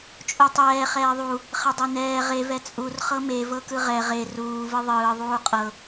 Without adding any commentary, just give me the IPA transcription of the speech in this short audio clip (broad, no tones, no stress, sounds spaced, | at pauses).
t͡ʃʼ u tˤ ɛː χ ɛː ðˤ u | χ ɛ dˤ e n ɛː ʁ e v ɛ t͡sʼ u r χ ɤ m e v ɤ k ɯ ʁ ɛ ʁ e r uː v ɯ ðˤ ɯː ðˤ uː qʼ ɤ